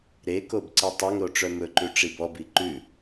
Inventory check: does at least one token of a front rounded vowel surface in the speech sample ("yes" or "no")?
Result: yes